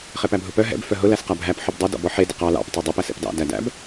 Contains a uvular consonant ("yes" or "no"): yes